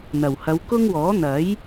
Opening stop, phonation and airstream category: plain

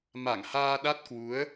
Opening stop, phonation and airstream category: implosive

